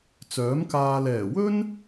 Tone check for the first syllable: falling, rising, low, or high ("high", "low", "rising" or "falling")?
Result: rising